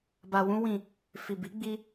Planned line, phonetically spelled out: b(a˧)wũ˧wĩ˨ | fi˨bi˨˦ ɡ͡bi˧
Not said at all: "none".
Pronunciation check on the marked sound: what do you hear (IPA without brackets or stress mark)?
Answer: a˨